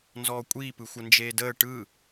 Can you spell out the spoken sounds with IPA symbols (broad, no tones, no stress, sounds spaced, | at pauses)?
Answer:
n z ɔː kʷʼ iː p ɯ xʷ ə n d͡ʒ eː d əː ʈ ɯ